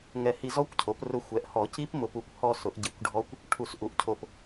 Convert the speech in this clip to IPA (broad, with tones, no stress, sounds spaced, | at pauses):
ŋ ɛ˧˩ h i˧ z ɔ˦˥ kʷ cʰ o˩˥ p r ʊ˧ xʷ ɛ˩˥ ʔ h ɔ˨˩˦ c i˦˥ p m ʊ˧ p u˧˩ kʷ h ɔ˧ s ʊ˨˩˦ ʔ ɟ i˨˩˦ kʷ ɖʱ ɔ˦˥ kʷ | ʈʰ u˨˩˦ s ʔ u˩˥ ʔ cʰ o˧˩ p